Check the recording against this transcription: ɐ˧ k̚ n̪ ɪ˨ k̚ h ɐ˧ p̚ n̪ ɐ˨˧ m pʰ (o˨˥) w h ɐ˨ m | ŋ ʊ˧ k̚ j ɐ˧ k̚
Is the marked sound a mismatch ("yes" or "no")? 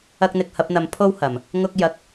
yes